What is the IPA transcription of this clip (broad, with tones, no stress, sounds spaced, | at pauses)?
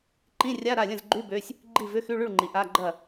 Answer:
ǃ ĩ˧˥˧ rʲ a˧˥˧ ɾ a˥˩ lʲ ə̃˥˩ z ɡ͡ǃ y˧˥˧ b ø˧˥˧ sʲ | ɡ͡ǃ i˥˩ v ʏ˧˥˧ x y˧˥˧ ɭ y˥˩ ɭ ŋ͡ǃ i˩˧ ʔ a˧˥˧ ɡ͡ǃ ɐ˥˩